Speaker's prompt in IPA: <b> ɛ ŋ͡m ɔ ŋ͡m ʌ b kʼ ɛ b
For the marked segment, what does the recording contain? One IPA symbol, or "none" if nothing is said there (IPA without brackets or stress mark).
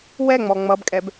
w